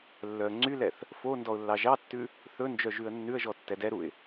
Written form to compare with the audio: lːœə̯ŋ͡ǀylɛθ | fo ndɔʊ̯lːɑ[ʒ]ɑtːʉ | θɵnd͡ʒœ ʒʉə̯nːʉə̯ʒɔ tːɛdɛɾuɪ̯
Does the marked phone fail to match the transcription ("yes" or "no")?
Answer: no